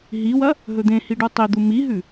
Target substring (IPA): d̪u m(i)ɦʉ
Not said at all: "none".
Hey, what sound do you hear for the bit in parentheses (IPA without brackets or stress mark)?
i